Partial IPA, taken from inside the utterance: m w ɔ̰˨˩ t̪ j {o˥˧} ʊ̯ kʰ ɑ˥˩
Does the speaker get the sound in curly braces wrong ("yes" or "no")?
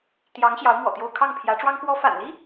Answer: no